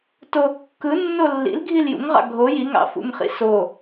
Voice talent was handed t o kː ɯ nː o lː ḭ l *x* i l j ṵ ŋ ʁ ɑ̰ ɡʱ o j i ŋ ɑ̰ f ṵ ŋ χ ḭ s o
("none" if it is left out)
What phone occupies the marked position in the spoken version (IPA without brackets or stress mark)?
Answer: ɡʱ